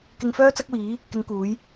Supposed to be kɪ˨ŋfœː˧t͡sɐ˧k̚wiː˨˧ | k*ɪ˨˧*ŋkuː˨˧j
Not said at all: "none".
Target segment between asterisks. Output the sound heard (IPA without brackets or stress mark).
ɪ˨˧